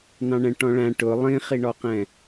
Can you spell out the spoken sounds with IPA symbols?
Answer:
n ɑ̃ ɳ ɛ̃ ʈ ɔ̃ ɭ æ̃ ʈ ʊ lˠ ĩ χ i ɳ ɔ q ɛ̃

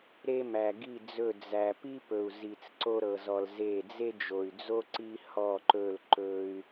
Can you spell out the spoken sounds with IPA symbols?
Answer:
ɾ e˦ m æ˨ ɡ i˦˨ d͡z ɵ˦˨ d͡z æ˨ p i˦ p ɵ˨ u̯ z i˨ t͡s ǀ o˦ ɾ ɤ˨ z ɔ˨ l z e˦˨ d͡z e˦ d͡ʒ o˨ y̯ d͡z o˦ ǀ i˦ h ɔ˦˨ ǃ ɵ˦˨ l ǃ ɵ˦ y̯

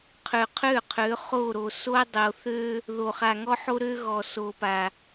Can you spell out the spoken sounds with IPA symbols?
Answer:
qʰ ø˨ qʰ ø˦˨ qʰ ø˨˦ χ o˦˨ ɾ o˨ s o˦ dˤ o˨ θ ø˦ | ð o˨ χ a˨ ŋ ɔ˦ ħ o˦ ɾ ø˦ ɣ ɔ˨ s o˨ p a˨

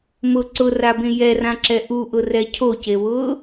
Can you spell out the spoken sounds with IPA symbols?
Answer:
m ʊ ǀ ʊ r a b ẽ j ɛ r ã ǁ ɛ ʔ u ʔ ʊ r ɛ cʰ o c e w ʊː

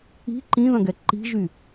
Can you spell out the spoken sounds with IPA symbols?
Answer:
i̤ ǃ ĩ ð ɐ̃ ɡ ɛ ǃ i̤ ʒ y

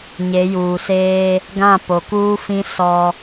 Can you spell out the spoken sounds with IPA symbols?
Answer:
ɲ e˨˦ j uː˨ s eː˦ | ɡ ã˦˨ p o˨ k uː˦ f ĩ˦ s ɔ˦

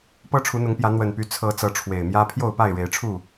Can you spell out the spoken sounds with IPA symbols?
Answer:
p ɤ˦ ʈ͡ʂʰ u˨˦ n̪ ʊ˨˦ ŋ p j ä˨˦ n̪ w ə˨˩ n p y˨˦ t͡sʰ ɤ˨˦ t͡s ɤ˨˦ ʈ͡ʂʰ w e˨˩ ɪ̯ m j ä˦ pʰ j o˥˨ ʊ̯ p a˥˨ ɪ̯ ɻ e˨˦ ɪ̯ ʈ͡ʂʰ u˥˨

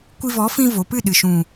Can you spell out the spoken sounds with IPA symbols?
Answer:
kʷ i˧ v ɔ˨˦ f ĩ˧ v o˨ p ɨ˦˨ ɗ ɨ˨ ʃ ũ˨

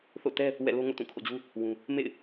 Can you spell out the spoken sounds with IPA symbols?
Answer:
θ o̰˦˨ t ɛ˦ | w ɛ̰˦˨ l o˦ ŋ o̰˦˨ t ũ˦˨ kʰ o̰˦˨ d͡ʑ u˦ | w ũ˦ | m ḛ˦˨ ɪ̯

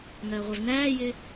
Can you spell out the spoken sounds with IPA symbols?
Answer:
ŋ ɜː ʁʷ æ v n æː j ɪː

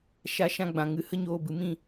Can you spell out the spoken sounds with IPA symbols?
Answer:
ʃ a˧ ʃ ã˧ ɡ͡b ã˨ ŋ ɨ˧ h ə˦ ɲ oː˧ b ɨ˨ m ĩ˦˨

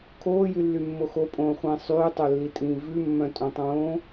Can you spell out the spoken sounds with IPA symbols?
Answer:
kʰ oː j y lː y mː o x o pʼ õː χʷ ĩː sˤ yː tˤ œ lː i tʼ ĩː v ʉ mː œ̃ tʼ õ tˤ õː

